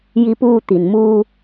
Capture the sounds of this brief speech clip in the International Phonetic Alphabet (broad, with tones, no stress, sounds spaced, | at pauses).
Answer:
j i˧ p uː˧ t̪ i˩ n m uː˧